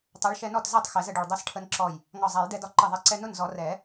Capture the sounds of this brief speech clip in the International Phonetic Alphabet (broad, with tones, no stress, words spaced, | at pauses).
tˤɛ˨˥ɭʃɛ˧nɔ˥˩tzɛ˥˩tˤ xɛ˨˩˦zə˥˩ɖu˧˩ɭ dˤɛ˧sʈʰə˧nǁɔ˧˩j | ŋɒ˧˩zˤæ˨˩˦jdɛ˧dɒ˧ ǃə˧˩ðˤɛ˧ ǀɛ˧nʊ˥˩nzɔ˨˩˦ rɛ˨˩˦